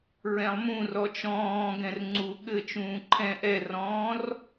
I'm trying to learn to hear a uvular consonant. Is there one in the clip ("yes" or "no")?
no